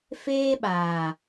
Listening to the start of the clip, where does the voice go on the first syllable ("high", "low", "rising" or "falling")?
high